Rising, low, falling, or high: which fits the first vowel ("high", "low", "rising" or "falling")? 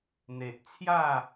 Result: low